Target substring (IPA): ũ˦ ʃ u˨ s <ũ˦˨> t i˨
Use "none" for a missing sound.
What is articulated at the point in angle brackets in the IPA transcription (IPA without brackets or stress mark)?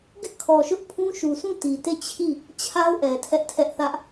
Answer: ũ˦˨